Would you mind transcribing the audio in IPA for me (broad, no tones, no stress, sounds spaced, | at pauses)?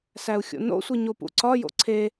s æ u̯ xʲ o̰ n o̰ sʷ i ɲ o p ṵ ǀ ɒ j o̰ ǀʰ e